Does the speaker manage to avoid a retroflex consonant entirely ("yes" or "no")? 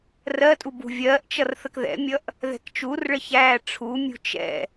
no